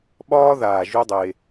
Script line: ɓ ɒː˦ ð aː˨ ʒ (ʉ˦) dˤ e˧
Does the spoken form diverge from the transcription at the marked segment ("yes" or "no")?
no